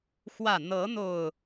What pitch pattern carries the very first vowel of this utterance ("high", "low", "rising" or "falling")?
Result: falling